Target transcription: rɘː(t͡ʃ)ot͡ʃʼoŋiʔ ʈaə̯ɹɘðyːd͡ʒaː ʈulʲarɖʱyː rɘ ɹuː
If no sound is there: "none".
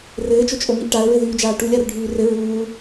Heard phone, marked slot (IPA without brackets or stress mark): t͡ʃ